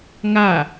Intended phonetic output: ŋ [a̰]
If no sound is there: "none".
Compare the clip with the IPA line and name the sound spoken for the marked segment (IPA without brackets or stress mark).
a